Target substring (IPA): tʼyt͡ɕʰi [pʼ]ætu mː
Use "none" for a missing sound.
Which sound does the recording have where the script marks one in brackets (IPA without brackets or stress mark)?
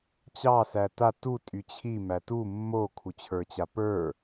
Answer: m